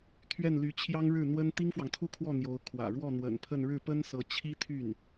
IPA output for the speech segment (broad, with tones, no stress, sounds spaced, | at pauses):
t̪ʰ ɥ ɛ˥˩ n l y˧˥ t͡ɕʰ j ɑ˥ ŋ ɻ ɻ̩˥˩ n̪ w ə˥ n t̪ i˥ ŋ f w ɑ˨ ŋ t̪ʰ u˥˧ kʰ w ɔ˥˩ n̪ j o˧˥ ʊ̯ kʰ w ä̰˨˩ ɻ w ɔ˥˩ n̪ w ə̰˨˩ n pʰ ə˥˧ n ɻ ɻ̩˥˩ p ə˥ n s ɤ˧˥ t͡ɕʰ i˥ t̪ʰ y˥˩ n